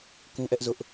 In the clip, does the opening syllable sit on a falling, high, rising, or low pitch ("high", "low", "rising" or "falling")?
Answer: high